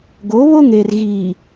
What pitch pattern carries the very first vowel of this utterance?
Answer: rising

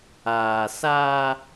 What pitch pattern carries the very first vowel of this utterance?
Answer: low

